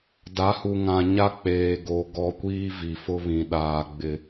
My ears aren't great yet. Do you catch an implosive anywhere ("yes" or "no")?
yes